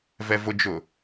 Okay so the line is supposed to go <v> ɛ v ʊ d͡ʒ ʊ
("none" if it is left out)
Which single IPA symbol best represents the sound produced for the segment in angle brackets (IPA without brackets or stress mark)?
v